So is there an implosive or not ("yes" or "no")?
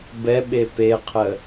yes